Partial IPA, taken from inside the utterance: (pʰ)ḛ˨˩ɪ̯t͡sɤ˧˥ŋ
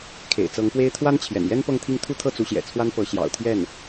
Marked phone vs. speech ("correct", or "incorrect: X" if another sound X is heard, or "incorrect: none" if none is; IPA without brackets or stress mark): incorrect: kʰ